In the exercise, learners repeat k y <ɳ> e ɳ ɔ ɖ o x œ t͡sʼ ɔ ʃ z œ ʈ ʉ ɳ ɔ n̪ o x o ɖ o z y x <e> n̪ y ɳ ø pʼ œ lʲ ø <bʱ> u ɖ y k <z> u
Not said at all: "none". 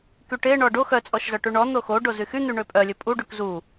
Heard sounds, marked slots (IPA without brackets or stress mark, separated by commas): ʈ, y, pʼ, z